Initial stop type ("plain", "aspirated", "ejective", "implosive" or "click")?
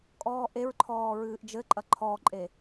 ejective